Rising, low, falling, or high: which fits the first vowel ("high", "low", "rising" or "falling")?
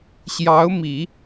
rising